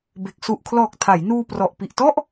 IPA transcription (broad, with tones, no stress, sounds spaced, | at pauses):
b e˨˩ k̚ s u˨˩ ʔ kʰ l ɔː˨˩ k̚ tʰ a˩˦ j n uː˧ p r ɔ˨˩ ʔ p i˨˩ ʔ t ɔ˥˩ ʔ